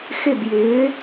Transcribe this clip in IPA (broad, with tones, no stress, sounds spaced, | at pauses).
x ɪ˥˩ b j ɪː˩˥